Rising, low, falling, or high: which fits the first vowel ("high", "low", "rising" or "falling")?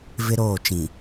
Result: high